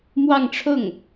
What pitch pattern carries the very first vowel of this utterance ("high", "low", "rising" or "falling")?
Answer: falling